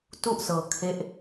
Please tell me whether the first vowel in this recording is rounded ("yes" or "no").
yes